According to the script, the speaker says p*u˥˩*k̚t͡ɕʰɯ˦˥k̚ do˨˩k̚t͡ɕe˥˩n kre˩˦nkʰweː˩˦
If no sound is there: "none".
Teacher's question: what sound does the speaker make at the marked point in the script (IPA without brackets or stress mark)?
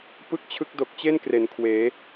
ɯ˥˩